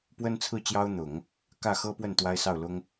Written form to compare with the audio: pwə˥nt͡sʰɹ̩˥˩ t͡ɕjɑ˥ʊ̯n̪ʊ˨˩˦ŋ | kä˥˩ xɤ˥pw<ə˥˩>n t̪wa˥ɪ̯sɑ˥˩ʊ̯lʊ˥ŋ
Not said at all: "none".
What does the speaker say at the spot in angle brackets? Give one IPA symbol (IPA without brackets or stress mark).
ə˥˩